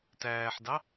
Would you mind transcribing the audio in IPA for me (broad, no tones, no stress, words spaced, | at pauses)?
tæːħdɑ